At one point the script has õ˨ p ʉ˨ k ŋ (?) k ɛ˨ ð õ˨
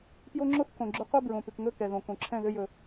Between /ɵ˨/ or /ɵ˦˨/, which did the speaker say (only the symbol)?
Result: ɵ˦˨